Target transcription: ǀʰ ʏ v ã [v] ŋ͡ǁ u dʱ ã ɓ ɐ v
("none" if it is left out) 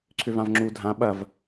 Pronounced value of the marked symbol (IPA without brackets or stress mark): v